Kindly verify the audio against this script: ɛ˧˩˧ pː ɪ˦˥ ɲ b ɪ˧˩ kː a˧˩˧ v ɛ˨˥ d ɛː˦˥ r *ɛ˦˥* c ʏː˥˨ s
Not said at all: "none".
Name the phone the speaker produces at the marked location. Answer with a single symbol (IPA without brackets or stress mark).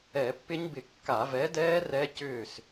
ɛ˦˥